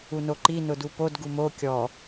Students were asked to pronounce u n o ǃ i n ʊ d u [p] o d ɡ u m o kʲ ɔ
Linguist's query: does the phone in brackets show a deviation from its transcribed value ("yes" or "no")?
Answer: no